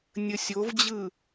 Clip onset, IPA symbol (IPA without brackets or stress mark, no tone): nʲ